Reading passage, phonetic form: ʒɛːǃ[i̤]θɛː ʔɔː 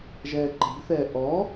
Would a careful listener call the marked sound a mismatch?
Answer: no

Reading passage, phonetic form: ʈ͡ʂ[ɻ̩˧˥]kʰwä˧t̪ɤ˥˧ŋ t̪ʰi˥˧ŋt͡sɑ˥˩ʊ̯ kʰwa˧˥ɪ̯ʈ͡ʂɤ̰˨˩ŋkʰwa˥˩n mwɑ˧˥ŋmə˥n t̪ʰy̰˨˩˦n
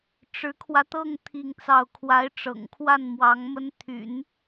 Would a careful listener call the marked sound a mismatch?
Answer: no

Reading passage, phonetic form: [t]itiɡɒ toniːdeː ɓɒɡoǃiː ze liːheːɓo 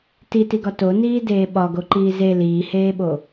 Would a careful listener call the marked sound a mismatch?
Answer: no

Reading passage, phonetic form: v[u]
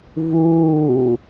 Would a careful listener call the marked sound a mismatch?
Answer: yes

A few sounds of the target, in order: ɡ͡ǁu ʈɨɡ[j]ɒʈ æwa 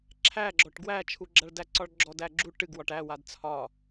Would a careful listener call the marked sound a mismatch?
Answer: yes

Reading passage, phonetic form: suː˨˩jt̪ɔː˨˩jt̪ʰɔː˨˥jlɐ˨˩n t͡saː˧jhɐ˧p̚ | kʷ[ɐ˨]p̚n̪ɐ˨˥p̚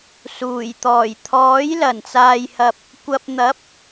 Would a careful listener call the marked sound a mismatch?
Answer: no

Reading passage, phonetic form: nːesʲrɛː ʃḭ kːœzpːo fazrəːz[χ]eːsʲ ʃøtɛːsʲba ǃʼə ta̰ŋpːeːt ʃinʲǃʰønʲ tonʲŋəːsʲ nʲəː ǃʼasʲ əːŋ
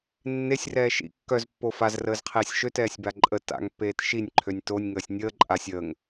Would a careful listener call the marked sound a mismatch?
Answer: yes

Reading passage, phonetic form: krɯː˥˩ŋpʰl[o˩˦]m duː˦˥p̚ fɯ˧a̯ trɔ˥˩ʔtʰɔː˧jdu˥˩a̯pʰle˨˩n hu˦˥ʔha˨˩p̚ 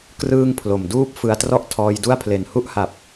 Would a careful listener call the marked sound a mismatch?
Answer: yes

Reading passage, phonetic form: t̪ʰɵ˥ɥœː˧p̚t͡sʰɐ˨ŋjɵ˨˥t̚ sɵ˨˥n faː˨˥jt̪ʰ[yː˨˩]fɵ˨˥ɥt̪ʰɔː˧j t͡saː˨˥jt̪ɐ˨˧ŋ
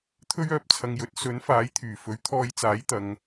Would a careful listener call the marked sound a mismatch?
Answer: no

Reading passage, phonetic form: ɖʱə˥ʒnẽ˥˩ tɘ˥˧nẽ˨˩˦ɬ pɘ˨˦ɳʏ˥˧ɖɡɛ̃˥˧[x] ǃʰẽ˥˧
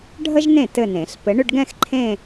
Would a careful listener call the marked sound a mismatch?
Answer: no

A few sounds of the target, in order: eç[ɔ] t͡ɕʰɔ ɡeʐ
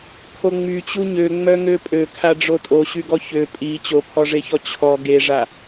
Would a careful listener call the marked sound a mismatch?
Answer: no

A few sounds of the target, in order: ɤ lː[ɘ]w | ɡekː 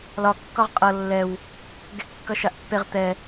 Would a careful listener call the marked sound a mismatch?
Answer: yes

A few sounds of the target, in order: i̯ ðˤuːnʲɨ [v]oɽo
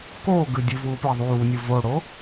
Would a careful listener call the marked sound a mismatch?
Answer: no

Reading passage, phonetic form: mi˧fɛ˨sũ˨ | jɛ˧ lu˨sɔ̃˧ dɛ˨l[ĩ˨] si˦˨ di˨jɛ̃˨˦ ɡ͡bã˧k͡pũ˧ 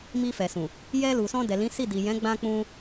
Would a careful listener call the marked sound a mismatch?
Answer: yes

